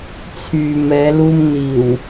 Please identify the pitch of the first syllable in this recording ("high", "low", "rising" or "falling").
low